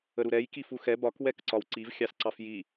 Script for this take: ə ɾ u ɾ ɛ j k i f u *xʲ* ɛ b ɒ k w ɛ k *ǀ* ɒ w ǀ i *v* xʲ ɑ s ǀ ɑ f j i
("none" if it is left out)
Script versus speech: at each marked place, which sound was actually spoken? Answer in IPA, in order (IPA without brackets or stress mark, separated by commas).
x, ǀ, v